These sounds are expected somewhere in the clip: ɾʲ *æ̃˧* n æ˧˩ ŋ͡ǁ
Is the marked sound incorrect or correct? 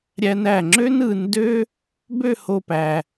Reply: incorrect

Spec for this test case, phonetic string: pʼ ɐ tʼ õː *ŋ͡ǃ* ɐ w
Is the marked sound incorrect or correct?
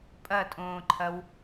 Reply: incorrect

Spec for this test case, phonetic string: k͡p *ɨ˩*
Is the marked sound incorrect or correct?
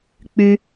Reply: incorrect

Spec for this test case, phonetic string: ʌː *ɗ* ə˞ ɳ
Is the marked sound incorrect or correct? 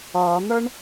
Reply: incorrect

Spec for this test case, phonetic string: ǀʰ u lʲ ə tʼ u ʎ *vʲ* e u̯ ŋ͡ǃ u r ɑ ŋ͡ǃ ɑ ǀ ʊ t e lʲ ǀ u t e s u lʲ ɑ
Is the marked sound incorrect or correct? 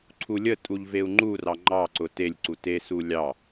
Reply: incorrect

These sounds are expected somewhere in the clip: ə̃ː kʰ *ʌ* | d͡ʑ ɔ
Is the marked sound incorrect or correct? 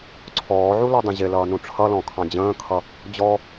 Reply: correct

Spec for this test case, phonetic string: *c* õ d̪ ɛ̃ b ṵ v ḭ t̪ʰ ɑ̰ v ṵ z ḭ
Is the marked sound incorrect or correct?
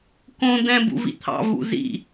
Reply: incorrect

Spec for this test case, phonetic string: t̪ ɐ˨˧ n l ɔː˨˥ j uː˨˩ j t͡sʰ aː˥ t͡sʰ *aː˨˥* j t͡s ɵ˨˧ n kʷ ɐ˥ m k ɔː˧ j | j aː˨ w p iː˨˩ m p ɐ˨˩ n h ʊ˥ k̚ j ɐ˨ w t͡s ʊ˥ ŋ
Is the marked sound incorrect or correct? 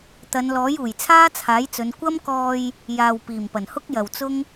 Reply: correct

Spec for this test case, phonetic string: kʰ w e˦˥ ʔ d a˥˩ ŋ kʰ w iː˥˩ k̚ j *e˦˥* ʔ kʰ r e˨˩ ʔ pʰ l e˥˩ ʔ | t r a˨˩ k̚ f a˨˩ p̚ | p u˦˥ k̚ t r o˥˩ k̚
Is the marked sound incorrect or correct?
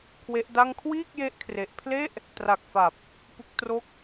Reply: correct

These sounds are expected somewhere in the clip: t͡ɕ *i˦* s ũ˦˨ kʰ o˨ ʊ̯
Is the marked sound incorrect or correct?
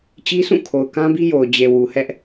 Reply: correct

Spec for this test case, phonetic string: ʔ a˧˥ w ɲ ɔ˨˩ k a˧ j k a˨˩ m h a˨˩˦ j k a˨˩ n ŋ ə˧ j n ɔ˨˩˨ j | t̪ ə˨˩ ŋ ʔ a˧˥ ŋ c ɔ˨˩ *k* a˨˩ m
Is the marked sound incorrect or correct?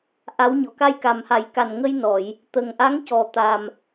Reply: incorrect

